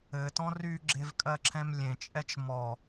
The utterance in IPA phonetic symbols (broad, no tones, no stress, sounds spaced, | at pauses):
ɘ t ɔ̃ r y ɡ͡ǁ e v kʼ ɜ ǁʰ ɛ̃ m lʲ ẽ t͡ʃʼ ɛ t͡ʃ m ɔ